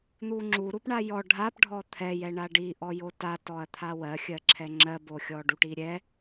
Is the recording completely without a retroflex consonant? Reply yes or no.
no